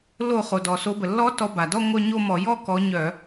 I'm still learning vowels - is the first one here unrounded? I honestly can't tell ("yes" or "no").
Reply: no